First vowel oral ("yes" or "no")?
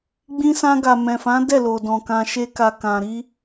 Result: no